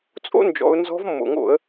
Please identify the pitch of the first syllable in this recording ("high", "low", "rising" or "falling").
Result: high